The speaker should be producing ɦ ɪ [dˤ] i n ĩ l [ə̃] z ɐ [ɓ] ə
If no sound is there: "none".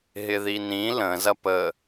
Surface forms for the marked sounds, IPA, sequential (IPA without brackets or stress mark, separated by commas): ð, ə̃, p